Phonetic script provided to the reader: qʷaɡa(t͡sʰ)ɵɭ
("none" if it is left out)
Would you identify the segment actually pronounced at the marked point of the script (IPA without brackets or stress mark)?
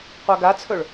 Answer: t͡sʰ